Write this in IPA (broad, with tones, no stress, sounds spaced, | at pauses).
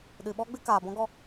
ɗ ɨ˨ ɓ ɔ˦ ɡ͡b ɨ˦ k aː˨ b ɔ̃˧ ɡ ɔ˦˨